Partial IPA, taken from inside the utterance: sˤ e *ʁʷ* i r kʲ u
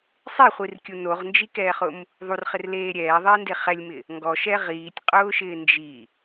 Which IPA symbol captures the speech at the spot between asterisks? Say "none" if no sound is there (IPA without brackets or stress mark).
χʷ